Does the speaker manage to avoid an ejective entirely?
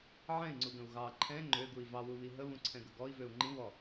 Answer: yes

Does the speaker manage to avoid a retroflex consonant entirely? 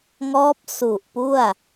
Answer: yes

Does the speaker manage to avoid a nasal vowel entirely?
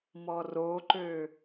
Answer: yes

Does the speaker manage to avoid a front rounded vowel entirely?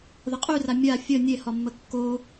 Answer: no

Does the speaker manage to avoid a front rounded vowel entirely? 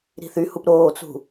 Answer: no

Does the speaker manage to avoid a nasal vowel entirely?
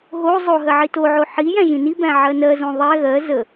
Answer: no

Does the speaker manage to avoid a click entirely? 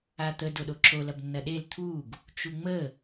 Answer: no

